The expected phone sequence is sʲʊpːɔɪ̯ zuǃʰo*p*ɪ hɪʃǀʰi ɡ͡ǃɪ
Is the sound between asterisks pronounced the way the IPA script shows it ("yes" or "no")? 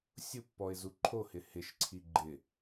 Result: no